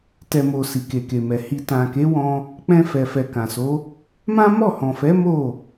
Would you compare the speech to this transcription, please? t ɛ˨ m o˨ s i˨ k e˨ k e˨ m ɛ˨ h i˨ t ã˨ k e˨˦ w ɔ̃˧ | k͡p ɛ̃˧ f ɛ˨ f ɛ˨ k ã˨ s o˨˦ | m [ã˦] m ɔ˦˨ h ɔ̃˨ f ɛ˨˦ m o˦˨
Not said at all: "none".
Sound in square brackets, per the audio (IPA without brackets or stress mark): ã˦